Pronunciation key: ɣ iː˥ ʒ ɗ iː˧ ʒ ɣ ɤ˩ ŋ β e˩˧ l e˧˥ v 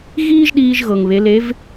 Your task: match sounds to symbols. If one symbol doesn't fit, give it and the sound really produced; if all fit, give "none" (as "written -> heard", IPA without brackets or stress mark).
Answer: none